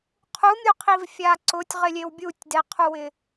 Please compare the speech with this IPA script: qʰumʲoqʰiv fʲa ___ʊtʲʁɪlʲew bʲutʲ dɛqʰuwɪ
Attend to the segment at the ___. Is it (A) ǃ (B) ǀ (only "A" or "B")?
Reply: B